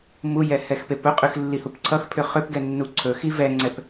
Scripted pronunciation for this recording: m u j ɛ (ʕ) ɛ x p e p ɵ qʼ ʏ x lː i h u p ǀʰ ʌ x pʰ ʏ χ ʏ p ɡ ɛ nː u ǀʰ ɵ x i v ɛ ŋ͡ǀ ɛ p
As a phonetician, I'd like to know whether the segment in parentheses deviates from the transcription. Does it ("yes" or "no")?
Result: yes